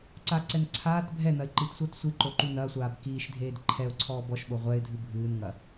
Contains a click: yes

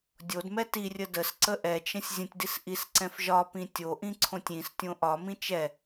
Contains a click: yes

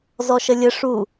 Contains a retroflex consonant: yes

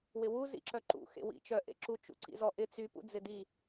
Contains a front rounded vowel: yes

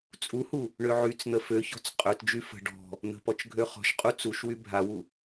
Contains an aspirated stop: no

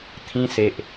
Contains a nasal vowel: yes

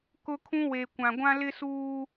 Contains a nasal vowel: yes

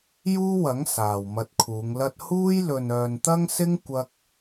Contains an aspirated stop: yes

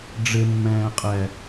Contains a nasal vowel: yes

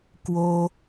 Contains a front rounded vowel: no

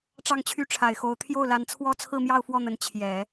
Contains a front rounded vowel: yes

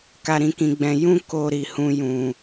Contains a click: no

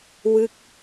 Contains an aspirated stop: no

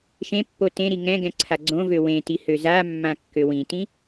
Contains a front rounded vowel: yes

